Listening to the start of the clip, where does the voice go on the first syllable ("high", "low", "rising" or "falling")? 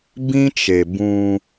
high